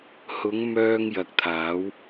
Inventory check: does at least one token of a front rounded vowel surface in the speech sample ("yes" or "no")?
yes